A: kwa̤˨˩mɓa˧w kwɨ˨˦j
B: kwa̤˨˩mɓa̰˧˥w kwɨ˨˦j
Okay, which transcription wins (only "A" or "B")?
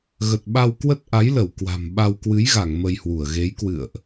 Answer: A